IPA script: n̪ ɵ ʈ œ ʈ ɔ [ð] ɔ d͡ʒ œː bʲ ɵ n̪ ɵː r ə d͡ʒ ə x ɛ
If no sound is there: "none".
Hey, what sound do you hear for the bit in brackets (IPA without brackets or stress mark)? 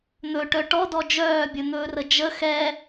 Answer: d